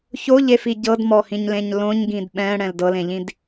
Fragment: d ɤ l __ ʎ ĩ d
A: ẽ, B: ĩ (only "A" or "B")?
A